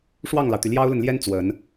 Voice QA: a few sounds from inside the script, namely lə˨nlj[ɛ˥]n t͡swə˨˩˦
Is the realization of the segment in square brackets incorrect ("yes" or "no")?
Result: no